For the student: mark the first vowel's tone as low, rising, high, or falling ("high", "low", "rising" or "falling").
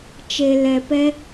low